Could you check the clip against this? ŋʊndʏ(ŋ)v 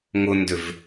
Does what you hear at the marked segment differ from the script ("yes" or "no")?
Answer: yes